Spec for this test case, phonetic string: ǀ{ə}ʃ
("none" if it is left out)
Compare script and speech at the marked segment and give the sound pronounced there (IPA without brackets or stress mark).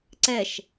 ɛ